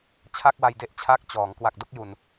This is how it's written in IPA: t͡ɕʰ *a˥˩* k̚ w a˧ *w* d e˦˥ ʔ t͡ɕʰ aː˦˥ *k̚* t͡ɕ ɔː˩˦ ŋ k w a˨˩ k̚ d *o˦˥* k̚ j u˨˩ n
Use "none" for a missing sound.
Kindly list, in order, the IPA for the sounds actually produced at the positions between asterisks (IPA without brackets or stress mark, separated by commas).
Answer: a˥˩, j, k̚, o˥˩